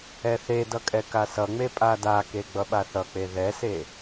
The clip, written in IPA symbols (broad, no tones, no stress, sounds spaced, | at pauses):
ɛ θ e d ʌ kʼ ɛ k a s ʌ ŋ͡m e pʼ a d a k e ɡ͡b ʌ ɓ a θ ʌ k͡p e ð ɛ s e